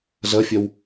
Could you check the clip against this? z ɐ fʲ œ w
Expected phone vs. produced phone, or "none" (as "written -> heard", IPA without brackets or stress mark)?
none